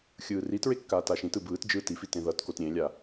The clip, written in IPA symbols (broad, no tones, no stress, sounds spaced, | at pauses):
xʲ ɯː r i t ɹ e kː aː t a ʃ ĩ t ɯ b ɯː t d͡ʒ ɯː t i f i t ẽ ð ʌ t k o t ɾʲ ẽ lʲ a